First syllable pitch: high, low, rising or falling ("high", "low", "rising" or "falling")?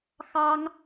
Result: high